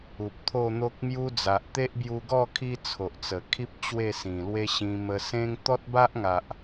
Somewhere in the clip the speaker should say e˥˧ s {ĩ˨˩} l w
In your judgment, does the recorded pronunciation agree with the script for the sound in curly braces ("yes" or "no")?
yes